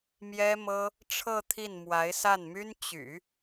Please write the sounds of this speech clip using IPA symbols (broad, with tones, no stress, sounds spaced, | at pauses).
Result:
m j ɛ˥ m ɤ˥ | ʈ͡ʂʰ ɤ˥˧ t̪ʰ i˥˩ n m w a˧˥ ɪ̯ s a˥˩ n m y˥ n t͡ɕ y̰˨˩˦